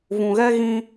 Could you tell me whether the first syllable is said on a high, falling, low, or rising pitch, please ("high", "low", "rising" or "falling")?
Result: low